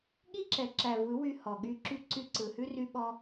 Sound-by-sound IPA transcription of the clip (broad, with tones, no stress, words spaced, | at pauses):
ɠi˦ǁɛ˨ǁæ˨ vɯ˨˦wy˧ hɔ˨ɠy˧ǁy˦ ǀy˧ǀɯ˨hʉ˦ry˦ ɓɔ˦